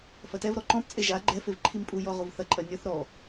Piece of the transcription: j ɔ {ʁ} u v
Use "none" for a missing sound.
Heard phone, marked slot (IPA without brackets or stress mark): ʁ